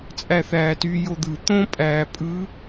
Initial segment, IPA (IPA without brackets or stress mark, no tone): t͡sʼ